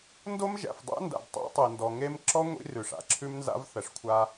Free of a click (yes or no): no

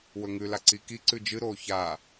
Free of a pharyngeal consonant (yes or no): yes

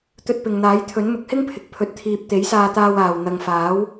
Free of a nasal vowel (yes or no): yes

